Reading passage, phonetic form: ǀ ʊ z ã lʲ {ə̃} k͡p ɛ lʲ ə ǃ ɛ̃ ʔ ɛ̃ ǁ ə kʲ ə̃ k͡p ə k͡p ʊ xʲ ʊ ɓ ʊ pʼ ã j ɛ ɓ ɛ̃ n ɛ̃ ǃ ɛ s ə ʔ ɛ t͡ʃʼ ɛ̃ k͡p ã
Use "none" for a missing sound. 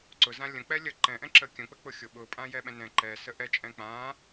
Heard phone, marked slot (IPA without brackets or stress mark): ə̃